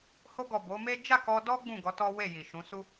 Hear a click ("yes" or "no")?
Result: no